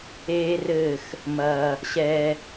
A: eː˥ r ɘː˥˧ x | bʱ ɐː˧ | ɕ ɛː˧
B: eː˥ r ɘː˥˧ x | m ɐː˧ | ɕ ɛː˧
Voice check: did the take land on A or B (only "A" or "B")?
B